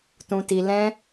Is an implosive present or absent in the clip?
absent